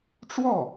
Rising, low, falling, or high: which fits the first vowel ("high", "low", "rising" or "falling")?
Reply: falling